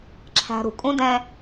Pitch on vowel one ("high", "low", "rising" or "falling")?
low